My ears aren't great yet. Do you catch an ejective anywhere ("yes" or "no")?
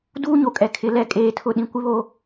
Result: yes